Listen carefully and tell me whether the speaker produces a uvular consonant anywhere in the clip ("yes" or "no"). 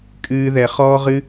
yes